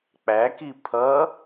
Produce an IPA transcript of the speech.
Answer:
k͡p æ k i pʰ ʌ

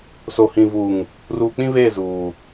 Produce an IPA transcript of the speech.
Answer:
s o˨ h ĩ˨ v uː˨ ŋ | r uː˨ k͡p ĩ˦ β e˦˨ z uː˨

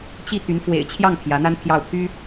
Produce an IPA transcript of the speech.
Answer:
t͡ɕ i˥˩ t̪ y˧˥ n f w ḛ˨˩ ɪ̯ t͡ɕʰ j ɑ˥˩ ŋ pʰ j ä˧˥ n̪ a˥ n pʰ j ɑ˥˩ ʊ̯ pʰ y˥

